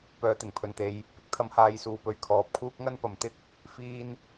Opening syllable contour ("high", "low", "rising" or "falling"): low